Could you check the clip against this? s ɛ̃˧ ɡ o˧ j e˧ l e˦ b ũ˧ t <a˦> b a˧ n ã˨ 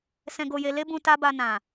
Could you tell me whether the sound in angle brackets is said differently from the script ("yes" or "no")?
no